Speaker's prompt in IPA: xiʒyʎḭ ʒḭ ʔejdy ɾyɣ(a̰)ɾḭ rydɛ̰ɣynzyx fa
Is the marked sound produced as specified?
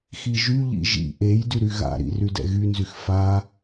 yes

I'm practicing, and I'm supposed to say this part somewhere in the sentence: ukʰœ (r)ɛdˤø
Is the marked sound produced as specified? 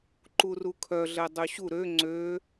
no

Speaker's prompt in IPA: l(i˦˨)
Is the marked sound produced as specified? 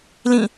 no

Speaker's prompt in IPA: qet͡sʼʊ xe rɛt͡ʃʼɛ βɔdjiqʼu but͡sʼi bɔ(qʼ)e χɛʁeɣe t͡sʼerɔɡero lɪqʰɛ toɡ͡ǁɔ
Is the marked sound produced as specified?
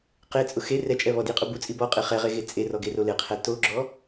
yes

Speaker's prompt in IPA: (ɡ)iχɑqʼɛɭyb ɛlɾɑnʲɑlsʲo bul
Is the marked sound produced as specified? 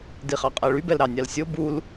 no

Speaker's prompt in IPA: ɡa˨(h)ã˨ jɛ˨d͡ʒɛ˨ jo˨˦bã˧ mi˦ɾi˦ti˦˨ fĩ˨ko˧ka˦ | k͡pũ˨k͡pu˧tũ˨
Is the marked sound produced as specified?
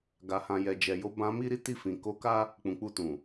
yes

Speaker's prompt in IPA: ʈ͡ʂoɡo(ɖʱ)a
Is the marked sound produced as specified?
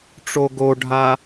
yes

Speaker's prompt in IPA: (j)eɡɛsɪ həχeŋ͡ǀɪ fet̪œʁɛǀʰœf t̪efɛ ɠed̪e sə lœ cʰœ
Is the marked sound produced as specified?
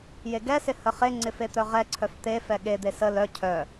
yes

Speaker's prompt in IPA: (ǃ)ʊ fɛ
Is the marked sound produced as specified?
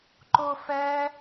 yes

